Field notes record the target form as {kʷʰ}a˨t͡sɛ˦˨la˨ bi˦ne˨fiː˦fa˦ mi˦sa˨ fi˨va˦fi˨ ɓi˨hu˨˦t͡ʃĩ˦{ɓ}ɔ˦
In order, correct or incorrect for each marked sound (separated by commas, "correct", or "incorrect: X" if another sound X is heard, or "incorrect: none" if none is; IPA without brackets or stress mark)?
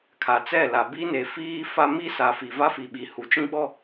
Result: incorrect: kʰ, correct